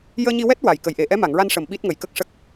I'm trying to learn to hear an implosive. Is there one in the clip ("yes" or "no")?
yes